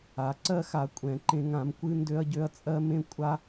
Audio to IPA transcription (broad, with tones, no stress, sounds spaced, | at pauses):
a˨˥ ǀ ɜ˥ x a˨˥ kʷʼ ɛ̃˨˥ ǃ ẽ˥ ŋ ã˨˥ m kʷ ɨ˥ n d ø˥ ɐ̯ ɟ ø˥ ɐ̯ t͡sʼ ɜ˥ m ẽ˥ kʷʼ a˥